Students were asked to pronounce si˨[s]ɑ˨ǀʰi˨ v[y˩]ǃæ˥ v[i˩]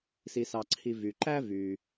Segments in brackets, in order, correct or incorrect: correct, correct, incorrect

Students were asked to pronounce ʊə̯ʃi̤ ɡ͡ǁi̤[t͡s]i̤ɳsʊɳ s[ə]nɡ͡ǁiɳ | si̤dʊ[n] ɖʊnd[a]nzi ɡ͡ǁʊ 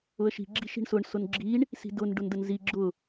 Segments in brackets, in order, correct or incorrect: incorrect, incorrect, correct, incorrect

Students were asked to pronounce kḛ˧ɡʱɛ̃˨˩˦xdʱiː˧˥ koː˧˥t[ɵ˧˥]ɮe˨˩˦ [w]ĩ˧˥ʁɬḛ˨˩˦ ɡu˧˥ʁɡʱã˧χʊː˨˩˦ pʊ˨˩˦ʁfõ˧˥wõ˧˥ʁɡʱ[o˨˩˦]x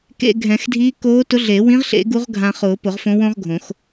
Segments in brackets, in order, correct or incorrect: incorrect, correct, incorrect

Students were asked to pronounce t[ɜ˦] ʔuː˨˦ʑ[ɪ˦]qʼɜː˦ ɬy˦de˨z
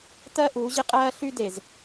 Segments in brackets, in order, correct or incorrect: correct, correct

